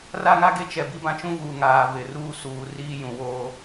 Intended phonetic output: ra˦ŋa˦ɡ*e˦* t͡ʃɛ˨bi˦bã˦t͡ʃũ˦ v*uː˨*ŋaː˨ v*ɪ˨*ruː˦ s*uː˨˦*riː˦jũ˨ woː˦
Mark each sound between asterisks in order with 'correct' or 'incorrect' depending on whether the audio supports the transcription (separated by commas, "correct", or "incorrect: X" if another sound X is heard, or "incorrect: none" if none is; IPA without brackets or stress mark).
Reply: correct, correct, correct, correct